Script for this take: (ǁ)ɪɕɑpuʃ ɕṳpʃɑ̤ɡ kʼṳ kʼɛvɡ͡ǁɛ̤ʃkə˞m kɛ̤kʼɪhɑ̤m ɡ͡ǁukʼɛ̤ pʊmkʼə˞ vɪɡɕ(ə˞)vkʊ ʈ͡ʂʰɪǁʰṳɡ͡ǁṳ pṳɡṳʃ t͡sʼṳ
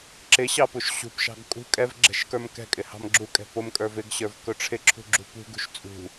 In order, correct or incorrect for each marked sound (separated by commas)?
correct, correct